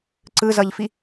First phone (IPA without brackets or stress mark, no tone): ǀ